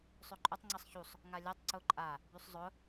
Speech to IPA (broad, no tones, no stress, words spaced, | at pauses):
sˤøǃʼʊtˤ ŋ͡ǀəsˤçusˤ | ŋalʲatˤ ǀʊ ǃʼa | bysˤzˤʊ